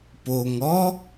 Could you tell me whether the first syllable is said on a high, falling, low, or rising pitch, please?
low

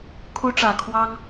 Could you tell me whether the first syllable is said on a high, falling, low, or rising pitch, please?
high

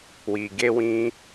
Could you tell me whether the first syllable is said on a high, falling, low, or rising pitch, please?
low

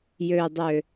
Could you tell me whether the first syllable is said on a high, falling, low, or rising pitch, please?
low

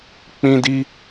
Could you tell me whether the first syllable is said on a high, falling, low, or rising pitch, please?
high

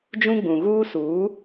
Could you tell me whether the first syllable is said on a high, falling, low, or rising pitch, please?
high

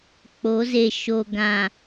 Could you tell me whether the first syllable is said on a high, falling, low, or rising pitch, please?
rising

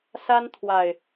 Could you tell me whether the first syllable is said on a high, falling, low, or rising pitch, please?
high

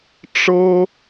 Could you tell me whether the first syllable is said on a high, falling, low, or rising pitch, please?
high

